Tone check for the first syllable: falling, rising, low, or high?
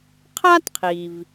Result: high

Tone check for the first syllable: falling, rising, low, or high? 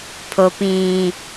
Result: low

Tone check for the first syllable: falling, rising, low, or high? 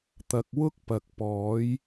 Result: low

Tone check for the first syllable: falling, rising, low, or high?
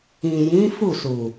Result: low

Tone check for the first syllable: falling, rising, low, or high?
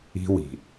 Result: high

